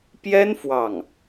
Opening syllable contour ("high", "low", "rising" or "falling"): high